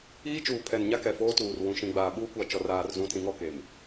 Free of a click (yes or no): yes